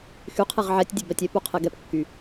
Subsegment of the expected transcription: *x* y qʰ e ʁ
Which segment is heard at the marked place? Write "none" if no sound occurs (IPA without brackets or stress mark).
x